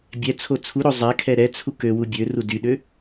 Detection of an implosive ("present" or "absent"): present